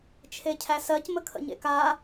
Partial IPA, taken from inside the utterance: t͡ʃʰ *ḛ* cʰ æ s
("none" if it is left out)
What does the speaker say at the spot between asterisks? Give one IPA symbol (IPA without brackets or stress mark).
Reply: e